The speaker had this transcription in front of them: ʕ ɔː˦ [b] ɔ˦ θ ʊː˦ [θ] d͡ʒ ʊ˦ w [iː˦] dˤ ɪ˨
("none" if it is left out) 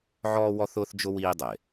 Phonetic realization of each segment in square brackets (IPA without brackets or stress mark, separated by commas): w, θ, iː˦